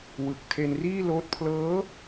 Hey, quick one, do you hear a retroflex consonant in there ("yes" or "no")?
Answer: no